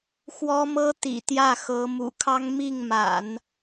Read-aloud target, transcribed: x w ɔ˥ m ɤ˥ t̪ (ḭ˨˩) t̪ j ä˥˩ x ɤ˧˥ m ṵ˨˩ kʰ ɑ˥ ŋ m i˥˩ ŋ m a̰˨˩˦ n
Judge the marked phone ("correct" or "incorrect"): correct